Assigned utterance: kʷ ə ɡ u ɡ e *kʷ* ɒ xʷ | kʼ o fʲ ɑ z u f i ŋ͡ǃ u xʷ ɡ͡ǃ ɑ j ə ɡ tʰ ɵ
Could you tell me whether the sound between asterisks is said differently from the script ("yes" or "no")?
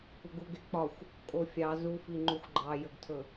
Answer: yes